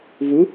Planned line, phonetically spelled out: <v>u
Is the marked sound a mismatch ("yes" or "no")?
no